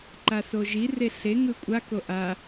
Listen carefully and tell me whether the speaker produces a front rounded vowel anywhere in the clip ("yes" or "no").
no